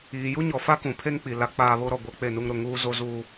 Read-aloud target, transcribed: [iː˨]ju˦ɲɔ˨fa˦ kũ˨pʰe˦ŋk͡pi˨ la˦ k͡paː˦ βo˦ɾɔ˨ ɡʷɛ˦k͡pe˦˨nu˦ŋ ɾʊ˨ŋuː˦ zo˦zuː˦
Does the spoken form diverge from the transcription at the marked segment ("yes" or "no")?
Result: no